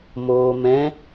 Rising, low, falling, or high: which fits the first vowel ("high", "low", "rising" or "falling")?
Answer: low